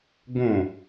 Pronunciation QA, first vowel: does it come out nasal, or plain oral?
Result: nasal